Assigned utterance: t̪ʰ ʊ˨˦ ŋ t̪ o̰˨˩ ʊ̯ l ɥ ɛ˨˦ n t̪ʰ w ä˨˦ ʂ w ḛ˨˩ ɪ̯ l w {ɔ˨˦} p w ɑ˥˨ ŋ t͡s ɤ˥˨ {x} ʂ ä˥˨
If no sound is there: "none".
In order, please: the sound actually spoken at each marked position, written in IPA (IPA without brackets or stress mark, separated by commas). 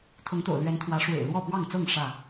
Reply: ɔ˥˨, ŋ